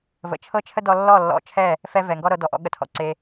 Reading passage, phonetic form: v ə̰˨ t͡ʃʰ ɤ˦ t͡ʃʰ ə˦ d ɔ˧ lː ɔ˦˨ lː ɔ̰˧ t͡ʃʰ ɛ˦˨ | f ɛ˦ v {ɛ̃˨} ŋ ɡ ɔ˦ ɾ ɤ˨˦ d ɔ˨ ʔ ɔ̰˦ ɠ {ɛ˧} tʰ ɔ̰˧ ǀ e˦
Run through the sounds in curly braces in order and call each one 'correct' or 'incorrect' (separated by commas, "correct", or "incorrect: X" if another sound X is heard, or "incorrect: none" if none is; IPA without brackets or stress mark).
incorrect: ɛ˨, incorrect: ə˧